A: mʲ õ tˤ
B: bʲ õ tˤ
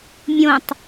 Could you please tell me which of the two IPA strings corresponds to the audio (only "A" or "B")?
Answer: A